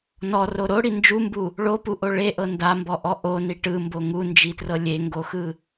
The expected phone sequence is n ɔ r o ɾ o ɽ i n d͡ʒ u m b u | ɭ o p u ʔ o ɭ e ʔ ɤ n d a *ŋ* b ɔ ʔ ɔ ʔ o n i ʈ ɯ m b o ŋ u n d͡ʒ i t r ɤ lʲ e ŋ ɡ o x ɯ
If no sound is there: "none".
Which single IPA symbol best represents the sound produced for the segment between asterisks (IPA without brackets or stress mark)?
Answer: m